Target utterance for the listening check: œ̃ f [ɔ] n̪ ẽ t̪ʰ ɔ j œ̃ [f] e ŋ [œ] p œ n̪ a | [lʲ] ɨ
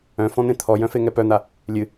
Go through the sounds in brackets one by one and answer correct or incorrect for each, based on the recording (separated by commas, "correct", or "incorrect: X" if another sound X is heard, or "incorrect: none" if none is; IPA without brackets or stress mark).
incorrect: ɔ̃, correct, incorrect: ɛ, correct